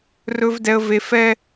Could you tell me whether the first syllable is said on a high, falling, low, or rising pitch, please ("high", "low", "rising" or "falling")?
high